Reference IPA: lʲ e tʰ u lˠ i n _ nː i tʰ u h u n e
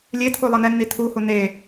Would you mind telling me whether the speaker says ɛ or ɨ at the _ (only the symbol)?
ɛ